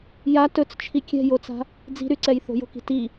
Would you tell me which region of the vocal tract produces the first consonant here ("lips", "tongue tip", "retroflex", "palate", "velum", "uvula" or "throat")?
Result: palate